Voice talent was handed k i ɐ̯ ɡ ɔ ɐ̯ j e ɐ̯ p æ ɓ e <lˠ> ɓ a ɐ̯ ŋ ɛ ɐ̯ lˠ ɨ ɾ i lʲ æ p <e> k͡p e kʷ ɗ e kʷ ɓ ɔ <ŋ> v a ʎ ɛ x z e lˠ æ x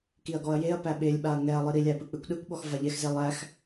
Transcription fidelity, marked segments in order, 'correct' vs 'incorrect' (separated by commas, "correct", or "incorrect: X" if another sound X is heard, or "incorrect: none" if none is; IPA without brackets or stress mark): incorrect: lʲ, incorrect: ɨ, incorrect: x